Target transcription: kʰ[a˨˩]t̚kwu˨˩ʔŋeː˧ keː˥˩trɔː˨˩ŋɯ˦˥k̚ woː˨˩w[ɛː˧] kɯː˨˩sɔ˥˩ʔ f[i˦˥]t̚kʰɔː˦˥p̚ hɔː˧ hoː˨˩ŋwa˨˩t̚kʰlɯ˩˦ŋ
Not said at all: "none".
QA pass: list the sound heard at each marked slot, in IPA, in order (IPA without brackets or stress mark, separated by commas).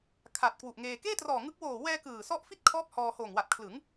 a˨˩, ɛː˧, i˥˩